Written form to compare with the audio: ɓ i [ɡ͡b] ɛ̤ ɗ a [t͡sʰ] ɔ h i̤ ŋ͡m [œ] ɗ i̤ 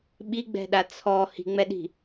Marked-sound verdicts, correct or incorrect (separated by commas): correct, correct, incorrect